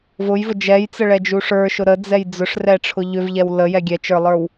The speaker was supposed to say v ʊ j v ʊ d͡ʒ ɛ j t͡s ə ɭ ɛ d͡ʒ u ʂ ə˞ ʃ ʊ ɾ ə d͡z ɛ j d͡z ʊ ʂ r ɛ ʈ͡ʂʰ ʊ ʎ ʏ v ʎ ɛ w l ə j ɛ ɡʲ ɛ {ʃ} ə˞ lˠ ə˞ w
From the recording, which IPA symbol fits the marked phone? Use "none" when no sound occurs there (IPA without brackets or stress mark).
t͡ʃ